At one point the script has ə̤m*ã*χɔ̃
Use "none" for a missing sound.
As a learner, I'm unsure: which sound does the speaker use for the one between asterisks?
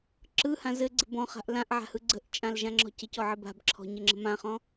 ã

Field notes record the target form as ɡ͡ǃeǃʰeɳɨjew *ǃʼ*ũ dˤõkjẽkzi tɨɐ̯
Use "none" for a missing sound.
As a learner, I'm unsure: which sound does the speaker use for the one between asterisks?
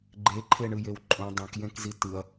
ǃʼ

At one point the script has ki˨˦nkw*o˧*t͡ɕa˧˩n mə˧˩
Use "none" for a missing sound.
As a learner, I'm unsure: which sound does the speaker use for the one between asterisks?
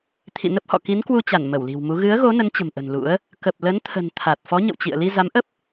u˧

